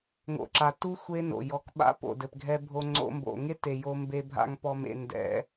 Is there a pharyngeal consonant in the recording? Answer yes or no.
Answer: no